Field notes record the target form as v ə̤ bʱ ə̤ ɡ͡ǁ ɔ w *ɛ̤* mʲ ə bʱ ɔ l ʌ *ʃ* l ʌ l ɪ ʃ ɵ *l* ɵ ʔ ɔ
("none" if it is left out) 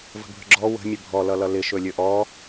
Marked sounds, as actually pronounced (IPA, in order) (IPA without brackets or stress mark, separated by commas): ə̤, none, lʲ